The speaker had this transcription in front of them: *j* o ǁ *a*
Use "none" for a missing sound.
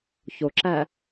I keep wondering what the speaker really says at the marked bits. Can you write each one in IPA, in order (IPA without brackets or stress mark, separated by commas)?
ç, æ